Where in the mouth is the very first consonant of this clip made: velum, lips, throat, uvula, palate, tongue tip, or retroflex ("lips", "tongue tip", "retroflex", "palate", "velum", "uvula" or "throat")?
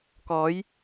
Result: velum